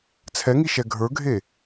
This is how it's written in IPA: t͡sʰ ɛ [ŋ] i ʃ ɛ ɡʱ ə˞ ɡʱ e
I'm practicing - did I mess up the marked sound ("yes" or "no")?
no